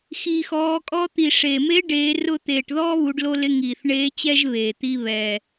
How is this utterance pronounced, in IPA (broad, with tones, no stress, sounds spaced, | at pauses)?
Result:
x iː˩ x ɔː˩˧ kʼ ɔ˧ t̪ i˩ ʂ eː˩ m e˧˥ ɖ eː˩˧ r ʊ˧ t̪ eː˩ ʈ ð ɔː˥ β u˩˧ ɖ l o˧ l ɪ˧˥ ŋ iː˩ θ ɳ eː˧˥ t͡ɕ ɛ˥ ʒ β eː˩ t̪ i˧ β ɛ˩